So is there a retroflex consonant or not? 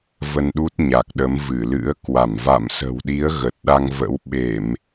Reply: no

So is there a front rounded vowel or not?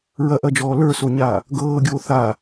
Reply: no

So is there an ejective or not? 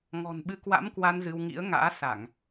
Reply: no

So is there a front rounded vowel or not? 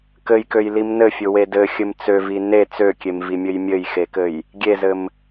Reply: yes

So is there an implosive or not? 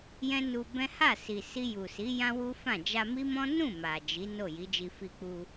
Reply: no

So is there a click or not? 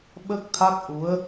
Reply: no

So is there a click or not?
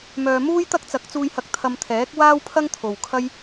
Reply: no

